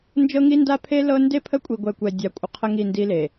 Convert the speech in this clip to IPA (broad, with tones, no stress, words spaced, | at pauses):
nd͡ʒɤ˦ŋi˦nda˦pʰe˦ lɤ˦ nde˦pʰə˦kʷʼi˨ɡʷɛ˨ kʷɛ˨dʲa˨kʷʼə˨ qʰə˦ŋi˦˨ndi˦le˨